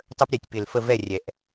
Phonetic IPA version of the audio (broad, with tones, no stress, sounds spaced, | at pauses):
tˤ ə˥ p ɾʲ ɛ˧˩ tʲ p ɪ˧˩ l f ə˥˨ v ɛ˥˨ rʲ ɛ˨˩˦ ʔ